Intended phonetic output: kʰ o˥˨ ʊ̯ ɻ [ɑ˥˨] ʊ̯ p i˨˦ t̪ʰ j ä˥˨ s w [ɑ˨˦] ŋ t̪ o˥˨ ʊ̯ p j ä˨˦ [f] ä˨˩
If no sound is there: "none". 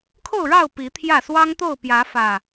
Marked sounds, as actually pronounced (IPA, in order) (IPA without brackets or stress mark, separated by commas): ɑ˥˨, ɑ˦, f